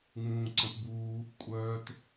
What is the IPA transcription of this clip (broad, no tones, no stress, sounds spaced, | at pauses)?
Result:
ŋ͡m ũː ǀ ə̃ p b uː | kʷʼ œː t